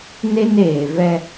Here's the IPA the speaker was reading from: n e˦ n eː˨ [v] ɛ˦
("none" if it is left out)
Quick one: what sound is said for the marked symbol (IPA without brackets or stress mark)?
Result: v